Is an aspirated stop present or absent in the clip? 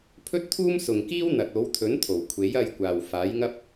present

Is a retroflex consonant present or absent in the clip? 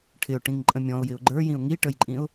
present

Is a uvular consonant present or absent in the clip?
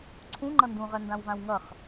present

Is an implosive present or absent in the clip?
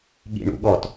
present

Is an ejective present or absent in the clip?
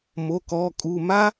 present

